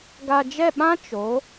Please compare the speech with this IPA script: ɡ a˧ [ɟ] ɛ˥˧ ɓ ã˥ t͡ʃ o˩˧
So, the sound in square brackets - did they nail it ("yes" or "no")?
no